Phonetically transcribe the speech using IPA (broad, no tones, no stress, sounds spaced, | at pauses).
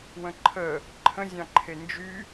w ə̃ ǃʰ ə | ǃʰ ə̃ zʲ ɑ̃ ǃʰ e n d͡ʒ y